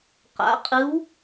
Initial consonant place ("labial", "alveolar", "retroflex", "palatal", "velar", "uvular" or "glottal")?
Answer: uvular